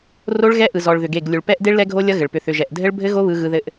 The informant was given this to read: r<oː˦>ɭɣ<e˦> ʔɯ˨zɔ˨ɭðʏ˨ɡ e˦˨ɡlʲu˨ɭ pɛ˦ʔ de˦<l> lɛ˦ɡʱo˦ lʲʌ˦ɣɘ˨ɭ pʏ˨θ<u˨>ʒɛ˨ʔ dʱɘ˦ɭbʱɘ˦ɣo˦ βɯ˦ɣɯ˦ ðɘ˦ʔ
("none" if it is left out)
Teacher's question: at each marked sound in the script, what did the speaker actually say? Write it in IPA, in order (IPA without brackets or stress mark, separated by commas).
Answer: o˦, ɛ˦, ɭ, ʏ˨